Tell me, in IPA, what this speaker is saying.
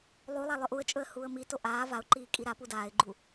lˠ u lˠ a lˠ ɵ ʔ u ə̯ t͡ʃʼ ɵ ə̯ h uː ə̯ m i t o ʔ aː v a ʊ̯ ǃ iː kʼ i ɾ a p u d aː ɪ̯ ɡ͡ǃ u

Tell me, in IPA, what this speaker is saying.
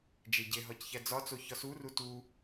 d͡ʒ e ɟ e ɦ ɒ c ç æ d͡z ɒ t͡s o ç ɒ s u r u t u

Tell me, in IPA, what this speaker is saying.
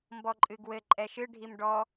m b ɔ ǃʼ ɨ ɡ w ɘ ǃʼ ɛ ʃ ɨ ɖʱ i m ɖ ɔ

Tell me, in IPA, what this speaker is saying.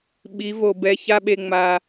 ɓ i˨˦ v o˨ b ɛ˦˨ ç a˦ ɓ e˨ ŋ͡m a˨

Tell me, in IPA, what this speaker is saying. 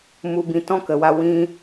m u˦ b ĩ˧ t ɔ̃˦ k ə˧ w a˦ w ĩ˦

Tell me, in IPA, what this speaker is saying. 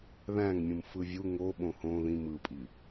ð æ̃ ŋ mʲ ũ m f ɯ vʲ u ŋ o ɓ õ h õ ð ĩ m ɯ pʼ i

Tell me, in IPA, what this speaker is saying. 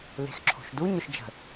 l e̤ x ǁʰ o̤ ʃ d u ɲ ʊ ʃ d͡ʒ ə̤

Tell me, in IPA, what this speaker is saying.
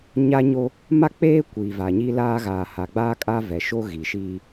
ɲ a˦ ɲ o˦ | m a˦ k͡p eː˦ kʷ iː˨ v a˨ ɲ i˦ l aː˦ ɣ aː˨ h a˨ ɡ͡b aː˦ kʼ a˦ v ɛ˨ ʃ o˦ ɣ i˨ ʃ iː˦

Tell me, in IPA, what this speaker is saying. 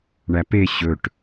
ɳ æ p e ɕ ɵ ʈ

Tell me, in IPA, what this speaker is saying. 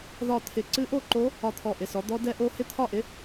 ð ɒ˥˨ t̪ʰ ɪ˦˥ ǀ ɨ˦˥ ʔ o˥˨ ǃ o˦˥ | ɒ˥˨ t̪ʰ ɔ˥˨ ʔ ɪ˥˨ s ɔ˦˥ d̪ ɔ˦˥ d ɛ˦˥ ʔ o˦˥ h ɪ˦˥ t̪ʰ ɒ˥˨ ʔ ɪ˦˥

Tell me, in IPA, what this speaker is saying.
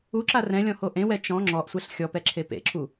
u ǁ a r ɛ̃ lʲ ɔ̃ h o ʔ ẽ w ɛ t͡ʃ ɔ̃ ŋ͡ǁ ɔ ʔ sʷ ɛ ɬ xʲ ɔ p ɛ ǁʰ e p ḛ ǁʰ u

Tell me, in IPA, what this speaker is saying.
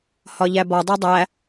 h ɒ ʎ æ b ɒ dˤ ɛ dˤ æ

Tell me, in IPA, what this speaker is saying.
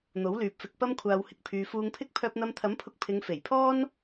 n̪ o˨˥ w l yː˨˥ p̚ f ɪ˧ k̚ p ɐ˥ m kʷʰ aː˧ w h ɪ˧ k̚ pʰ yː˨ f uː˧ ŋ pʰ ɪ˥ k̚ pʰ œː˧ p̚ n̪ ɐ˧ m t̪ʰ ɐ˨˥ m pʰ ʊ˧ k̚ pʰ ɪ˨˧ ŋ f e˨˩ j pʰ ɔː˥ n

